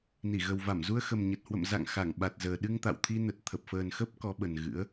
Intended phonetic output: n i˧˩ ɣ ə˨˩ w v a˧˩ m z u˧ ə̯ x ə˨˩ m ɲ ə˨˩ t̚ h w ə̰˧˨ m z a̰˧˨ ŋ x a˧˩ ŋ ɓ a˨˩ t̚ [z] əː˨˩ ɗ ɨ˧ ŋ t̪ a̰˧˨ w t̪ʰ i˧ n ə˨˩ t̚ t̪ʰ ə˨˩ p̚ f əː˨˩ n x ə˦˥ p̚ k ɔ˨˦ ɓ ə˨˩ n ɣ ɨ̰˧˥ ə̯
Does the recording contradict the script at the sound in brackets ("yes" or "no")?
no